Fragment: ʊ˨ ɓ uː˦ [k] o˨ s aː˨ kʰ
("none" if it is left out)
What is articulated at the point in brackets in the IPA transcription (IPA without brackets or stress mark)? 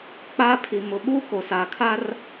k